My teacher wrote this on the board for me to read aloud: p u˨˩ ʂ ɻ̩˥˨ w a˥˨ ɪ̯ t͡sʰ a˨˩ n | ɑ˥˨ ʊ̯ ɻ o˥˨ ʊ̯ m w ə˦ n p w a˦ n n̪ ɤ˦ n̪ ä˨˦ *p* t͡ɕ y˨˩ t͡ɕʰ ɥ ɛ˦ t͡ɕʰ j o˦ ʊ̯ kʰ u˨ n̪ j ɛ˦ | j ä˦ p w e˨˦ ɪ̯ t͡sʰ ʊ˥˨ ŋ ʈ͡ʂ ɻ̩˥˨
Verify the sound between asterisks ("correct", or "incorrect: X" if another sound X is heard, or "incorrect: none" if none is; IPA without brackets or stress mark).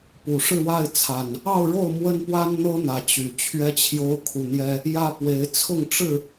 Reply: incorrect: none